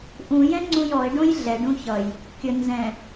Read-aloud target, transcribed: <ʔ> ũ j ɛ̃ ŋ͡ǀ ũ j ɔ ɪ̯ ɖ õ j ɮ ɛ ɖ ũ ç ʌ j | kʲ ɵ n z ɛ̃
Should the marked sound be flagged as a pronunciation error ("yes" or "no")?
no